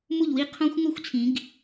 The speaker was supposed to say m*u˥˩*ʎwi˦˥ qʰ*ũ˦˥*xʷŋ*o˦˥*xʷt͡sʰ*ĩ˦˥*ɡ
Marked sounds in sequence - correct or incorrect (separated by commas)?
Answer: correct, incorrect, correct, incorrect